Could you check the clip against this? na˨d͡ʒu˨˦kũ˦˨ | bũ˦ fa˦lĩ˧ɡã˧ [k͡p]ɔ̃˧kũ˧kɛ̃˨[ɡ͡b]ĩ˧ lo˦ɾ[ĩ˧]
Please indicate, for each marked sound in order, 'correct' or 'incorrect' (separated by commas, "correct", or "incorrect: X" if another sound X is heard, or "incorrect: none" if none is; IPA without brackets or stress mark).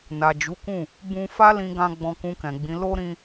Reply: incorrect: ɡ͡b, correct, correct